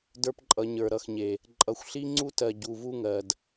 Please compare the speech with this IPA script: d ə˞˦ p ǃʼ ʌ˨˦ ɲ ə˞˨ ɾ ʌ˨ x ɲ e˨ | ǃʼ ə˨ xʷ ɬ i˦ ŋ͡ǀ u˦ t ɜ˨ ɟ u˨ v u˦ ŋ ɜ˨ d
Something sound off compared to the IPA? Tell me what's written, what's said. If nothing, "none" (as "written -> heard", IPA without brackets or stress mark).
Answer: ə˨ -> ʌ˨